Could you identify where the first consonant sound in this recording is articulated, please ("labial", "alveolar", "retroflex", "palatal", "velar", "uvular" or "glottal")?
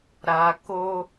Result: alveolar